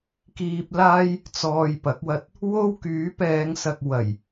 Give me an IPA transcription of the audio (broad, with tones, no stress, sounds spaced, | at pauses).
k iː˧ p̚ l aː˥ j | t͡s ɔː˨ j p ɐ˨˥ k̚ w ɐ˧ t̚ | w o˥ w k yː˨˥ p ɛː˨˧ ŋ s ɐ˨ k̚ w ɐ˨˩ j